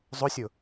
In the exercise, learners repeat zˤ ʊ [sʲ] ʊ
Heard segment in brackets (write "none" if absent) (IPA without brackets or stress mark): sʲ